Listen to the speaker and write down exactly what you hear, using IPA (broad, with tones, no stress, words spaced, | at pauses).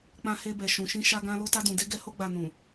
k͡pã˧he˧bɛ˨ ʃũ˨ʃĩ˧ ʃa˧ɡã˧ lo˧ta˧ dũ˨de˧ɡɛ˧ ho˧ɡ͡ba˨nũ˨